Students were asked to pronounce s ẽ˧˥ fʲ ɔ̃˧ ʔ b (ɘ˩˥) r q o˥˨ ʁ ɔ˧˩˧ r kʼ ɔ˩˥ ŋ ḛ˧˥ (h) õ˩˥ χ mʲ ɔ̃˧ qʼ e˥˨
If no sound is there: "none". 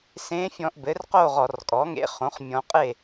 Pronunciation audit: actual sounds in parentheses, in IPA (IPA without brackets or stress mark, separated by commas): ɘ˩˥, χ